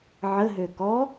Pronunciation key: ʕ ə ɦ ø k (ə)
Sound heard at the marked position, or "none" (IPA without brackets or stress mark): ɔ